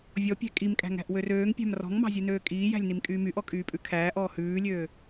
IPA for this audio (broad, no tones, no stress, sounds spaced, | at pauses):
vʲ ɔ pʲ æ̤ kʼ i m kʼ æ̤ ŋ æ̤ ʔ w ø r øː ŋ pʲ æ̤ m r ɔ̤ ŋ m ɑ̤ zʲ ʉ n øː kʼ iː j æ̤ lʲ n i m kʼ yː m y ʔ ɔ kʼ yː pʼ ʉ kʰ æː ʔ ɔː h ʉː lʲ øː